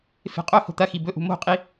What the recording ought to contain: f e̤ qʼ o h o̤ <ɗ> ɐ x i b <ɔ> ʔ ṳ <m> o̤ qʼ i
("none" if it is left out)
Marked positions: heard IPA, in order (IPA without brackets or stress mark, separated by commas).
t̪, ɵ, m